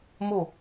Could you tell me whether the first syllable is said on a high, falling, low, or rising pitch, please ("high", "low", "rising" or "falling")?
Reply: falling